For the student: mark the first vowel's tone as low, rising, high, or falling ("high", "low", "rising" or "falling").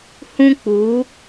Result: high